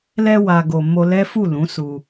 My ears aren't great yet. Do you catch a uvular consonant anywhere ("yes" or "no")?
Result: no